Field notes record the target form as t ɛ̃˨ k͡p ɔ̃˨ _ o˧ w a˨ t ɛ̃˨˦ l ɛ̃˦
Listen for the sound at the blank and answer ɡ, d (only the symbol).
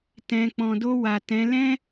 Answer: d